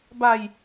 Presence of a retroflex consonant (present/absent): absent